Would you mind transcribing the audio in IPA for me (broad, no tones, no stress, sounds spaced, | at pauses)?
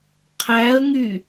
qʰ æ ə̯ ŋ y